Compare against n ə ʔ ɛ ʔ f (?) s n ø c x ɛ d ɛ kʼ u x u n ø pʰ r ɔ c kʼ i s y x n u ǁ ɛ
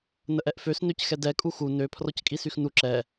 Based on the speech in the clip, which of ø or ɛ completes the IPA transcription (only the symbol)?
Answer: ø